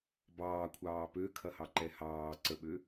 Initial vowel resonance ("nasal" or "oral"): oral